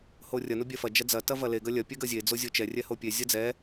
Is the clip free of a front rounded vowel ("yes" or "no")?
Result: yes